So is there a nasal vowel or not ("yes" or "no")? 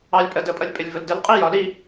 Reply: no